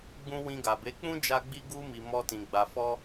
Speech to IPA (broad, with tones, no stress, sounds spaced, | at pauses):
ɡ͡b ũ˧ w ĩ˧ ɡ a˨ b e˨˦ k͡p ũ˦ d͡ʒ a˧ ɡ͡b i˧ ɡ u˧ m i˨ m ɔ˧ t ĩ˨ ɡ͡b a˨ f ɔ˧